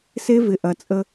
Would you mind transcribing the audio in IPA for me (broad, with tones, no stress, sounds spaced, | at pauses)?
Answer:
s e˦ v ɪ˨ ʔ ɐ˨ t͡sʼ ə˧